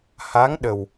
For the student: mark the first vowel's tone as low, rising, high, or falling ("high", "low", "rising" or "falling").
rising